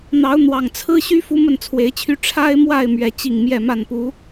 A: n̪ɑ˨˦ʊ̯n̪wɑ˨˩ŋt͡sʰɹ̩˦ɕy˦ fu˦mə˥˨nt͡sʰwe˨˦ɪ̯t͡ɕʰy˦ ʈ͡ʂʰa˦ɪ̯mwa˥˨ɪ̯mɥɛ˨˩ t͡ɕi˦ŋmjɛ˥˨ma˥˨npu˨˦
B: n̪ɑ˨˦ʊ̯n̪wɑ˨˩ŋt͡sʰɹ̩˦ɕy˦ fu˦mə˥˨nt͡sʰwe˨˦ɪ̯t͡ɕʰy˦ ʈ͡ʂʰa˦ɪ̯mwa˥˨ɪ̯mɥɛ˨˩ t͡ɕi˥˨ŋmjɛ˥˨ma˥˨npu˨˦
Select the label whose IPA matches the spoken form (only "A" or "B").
B